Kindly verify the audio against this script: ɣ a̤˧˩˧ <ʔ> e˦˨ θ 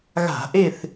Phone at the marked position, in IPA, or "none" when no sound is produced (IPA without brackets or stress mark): ʔ